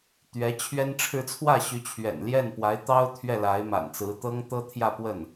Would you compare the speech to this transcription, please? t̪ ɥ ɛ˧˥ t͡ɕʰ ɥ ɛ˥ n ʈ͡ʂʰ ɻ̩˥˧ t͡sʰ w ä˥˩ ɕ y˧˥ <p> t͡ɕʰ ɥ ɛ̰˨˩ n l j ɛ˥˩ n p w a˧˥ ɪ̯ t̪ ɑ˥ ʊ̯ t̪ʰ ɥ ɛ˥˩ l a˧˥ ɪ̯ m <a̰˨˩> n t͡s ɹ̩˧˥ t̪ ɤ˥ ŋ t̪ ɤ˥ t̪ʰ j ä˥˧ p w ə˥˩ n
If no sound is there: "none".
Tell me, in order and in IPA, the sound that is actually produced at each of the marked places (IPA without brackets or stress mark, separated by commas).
none, a̰˨˩